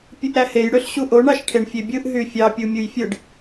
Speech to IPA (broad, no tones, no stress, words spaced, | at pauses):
pʲɯʔɾæhej ɽøɬɕuʔoɳ ɑʃʈʰeɳfʲebʲɯʔ ɦyfʲɑ pʲumʲujfʲɯɖ